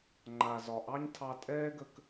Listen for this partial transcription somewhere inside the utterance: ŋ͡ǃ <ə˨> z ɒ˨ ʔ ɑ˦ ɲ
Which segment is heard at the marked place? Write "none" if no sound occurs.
a˨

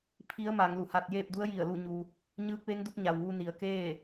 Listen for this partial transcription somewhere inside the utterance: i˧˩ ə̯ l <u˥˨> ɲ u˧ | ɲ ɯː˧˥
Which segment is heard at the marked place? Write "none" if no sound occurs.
u˥˨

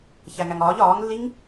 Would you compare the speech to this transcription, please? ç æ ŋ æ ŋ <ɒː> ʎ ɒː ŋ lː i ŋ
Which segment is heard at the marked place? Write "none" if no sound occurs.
ɒː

